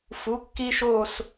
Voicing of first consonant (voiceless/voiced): voiceless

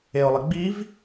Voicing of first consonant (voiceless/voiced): voiced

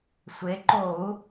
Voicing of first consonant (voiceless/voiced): voiceless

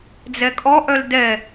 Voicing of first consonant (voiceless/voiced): voiced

